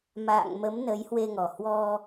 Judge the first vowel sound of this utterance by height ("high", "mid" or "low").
low